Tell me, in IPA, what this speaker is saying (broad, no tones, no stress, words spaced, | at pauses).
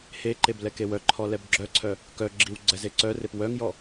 heǃeb lɛkewœǃʰɔ lɛbɡ͡ǁœǀʰœ | kœɡ͡ǁiw ɡ͡ǀɛzeǀœrep wœŋjɔ